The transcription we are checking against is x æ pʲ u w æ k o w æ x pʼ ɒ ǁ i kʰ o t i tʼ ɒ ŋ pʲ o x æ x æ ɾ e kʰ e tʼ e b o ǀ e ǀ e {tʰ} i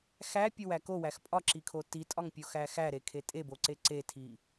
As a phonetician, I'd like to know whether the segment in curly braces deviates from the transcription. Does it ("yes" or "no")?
no